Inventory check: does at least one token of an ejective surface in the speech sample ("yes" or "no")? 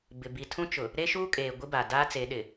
yes